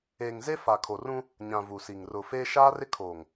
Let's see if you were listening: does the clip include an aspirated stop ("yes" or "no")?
yes